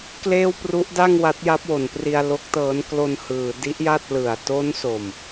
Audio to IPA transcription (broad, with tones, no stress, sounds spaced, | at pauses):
k l eː˥˩ w p r u˦˥ ʔ d a˥˩ ŋ w a˦˥ t̚ j a˦˥ p̚ w o˩˦ n p r i˧ a̯ l o˦˥ k̚ t ɤː˦˥ n k l o˧ n h ɯː˩˦ d i˦˥ ʔ j a˥˩ t̚ l ɯ˨˩ a̯ t o˦˥ n s o˨˩ m